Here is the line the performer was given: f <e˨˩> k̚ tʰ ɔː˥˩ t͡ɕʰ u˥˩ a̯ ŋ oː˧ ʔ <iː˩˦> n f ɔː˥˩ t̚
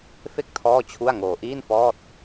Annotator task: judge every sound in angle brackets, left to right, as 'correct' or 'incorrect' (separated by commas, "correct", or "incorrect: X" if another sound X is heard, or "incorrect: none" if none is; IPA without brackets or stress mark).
incorrect: e˥˩, incorrect: iː˥˩